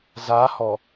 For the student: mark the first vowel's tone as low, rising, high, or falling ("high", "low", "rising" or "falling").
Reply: rising